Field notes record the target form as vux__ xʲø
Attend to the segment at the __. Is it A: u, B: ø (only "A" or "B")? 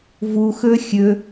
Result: B